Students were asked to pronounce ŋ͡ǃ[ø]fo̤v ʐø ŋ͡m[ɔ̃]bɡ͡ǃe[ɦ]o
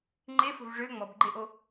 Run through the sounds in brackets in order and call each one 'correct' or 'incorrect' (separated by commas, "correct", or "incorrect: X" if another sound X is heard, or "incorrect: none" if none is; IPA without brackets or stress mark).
incorrect: e, incorrect: ɔ, incorrect: ʔ